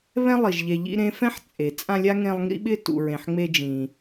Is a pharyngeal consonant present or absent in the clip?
present